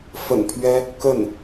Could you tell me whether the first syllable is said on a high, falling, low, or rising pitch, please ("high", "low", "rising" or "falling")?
low